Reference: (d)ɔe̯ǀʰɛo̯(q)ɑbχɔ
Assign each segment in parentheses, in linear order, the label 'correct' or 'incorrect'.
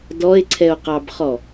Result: correct, correct

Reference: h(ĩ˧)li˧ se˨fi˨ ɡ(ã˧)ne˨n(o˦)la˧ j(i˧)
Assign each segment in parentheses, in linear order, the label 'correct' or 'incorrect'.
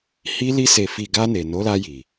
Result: incorrect: i˧, incorrect: a˧, incorrect: o˨˦, incorrect: i˨

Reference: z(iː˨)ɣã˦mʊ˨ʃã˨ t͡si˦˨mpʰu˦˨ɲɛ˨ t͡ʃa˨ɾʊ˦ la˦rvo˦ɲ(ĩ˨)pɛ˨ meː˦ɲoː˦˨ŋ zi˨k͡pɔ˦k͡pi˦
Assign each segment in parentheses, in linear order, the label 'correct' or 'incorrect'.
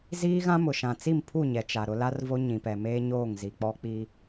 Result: incorrect: iː˦, correct

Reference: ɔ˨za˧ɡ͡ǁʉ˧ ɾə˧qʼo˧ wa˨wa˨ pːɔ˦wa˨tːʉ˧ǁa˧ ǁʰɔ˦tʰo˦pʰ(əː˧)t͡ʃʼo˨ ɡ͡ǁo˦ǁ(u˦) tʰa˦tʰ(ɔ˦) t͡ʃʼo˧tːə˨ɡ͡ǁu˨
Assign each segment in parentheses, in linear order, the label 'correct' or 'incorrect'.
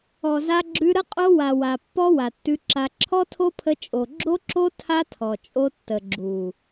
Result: incorrect: ə˧, incorrect: o˦, incorrect: ɔ˨

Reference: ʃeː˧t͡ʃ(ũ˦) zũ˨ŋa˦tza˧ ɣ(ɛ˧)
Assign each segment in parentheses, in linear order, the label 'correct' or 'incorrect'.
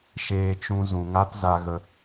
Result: incorrect: ũ˧, incorrect: ə˧

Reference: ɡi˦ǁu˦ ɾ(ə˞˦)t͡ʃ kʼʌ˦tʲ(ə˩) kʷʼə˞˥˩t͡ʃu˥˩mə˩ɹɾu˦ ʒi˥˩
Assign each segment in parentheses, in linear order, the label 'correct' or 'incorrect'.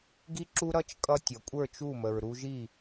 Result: incorrect: ʌ˦, incorrect: ʌ˩

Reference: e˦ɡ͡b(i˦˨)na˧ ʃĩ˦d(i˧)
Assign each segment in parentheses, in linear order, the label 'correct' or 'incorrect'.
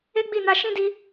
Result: correct, correct

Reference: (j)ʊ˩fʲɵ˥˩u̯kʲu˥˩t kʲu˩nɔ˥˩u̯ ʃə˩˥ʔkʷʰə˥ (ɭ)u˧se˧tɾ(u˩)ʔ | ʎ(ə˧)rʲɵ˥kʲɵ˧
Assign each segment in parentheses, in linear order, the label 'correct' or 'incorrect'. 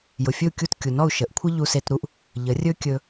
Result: correct, incorrect: ʎ, incorrect: u˥, incorrect: ə˩˥

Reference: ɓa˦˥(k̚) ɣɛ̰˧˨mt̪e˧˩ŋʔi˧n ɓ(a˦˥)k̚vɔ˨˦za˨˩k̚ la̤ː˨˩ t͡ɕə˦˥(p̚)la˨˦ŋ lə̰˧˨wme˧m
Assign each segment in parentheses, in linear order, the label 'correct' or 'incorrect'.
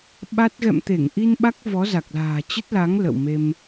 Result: incorrect: t̚, correct, incorrect: t̚

